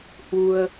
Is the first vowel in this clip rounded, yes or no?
yes